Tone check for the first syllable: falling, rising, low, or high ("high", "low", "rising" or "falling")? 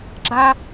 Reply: high